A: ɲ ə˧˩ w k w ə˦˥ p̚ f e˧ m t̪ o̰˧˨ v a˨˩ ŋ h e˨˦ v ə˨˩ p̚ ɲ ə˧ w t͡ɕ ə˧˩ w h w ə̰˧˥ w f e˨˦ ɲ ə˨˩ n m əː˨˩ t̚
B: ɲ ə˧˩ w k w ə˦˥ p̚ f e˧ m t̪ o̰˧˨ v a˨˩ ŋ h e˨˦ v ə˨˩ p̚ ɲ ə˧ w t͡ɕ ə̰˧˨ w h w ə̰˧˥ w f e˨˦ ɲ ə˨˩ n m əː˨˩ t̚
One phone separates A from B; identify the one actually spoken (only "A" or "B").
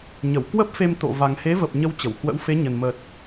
A